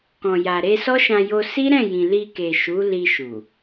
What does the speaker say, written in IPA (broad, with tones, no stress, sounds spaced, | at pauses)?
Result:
k ɔ̃˨ j a˨ ɾ e˧ s ɔ˦ ʃ ã˧ j o˧ s i˦ ɾ ɛ̃˦˨ j ĩ˨ l i˧ k e˨ ʃ u˨˦ l i˧ ʃ u˨